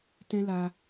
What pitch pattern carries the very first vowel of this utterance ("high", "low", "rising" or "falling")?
high